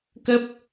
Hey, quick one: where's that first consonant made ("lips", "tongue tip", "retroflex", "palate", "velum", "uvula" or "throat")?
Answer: velum